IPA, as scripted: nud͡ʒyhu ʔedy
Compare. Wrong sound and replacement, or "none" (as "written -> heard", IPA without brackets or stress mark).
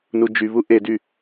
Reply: h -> β